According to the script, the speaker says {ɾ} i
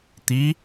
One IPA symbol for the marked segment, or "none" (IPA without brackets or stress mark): t̪